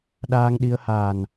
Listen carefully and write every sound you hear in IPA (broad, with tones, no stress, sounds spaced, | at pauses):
ɗ aː˧ ŋ ɗ i˧ ə̯ h aː˨˩ n